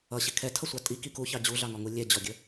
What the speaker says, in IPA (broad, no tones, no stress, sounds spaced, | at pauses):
ʌ ɕ ɪ kʰ ɛ tʰ ʌ sʷ ɑ tʼ i k i k u ç ɑ d͡ʑ u ɮ ɑ ŋ ɔ ŋ u lʲ ɛ d͡ʑ ɔ ɡʲ ə